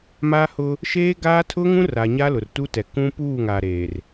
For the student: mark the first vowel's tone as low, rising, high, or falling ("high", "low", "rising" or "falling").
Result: high